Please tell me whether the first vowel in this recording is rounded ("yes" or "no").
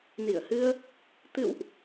no